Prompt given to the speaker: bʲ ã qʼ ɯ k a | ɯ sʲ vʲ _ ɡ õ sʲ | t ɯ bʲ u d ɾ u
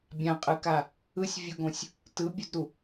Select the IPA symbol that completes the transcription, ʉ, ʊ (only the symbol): ʊ